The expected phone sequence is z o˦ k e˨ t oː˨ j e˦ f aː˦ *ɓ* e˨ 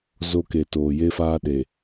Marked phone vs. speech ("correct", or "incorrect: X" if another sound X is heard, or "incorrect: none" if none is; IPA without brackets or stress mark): incorrect: ɗ